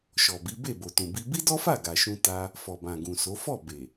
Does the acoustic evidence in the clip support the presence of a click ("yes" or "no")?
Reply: no